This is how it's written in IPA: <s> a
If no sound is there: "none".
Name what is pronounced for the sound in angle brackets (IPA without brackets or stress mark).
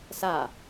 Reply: s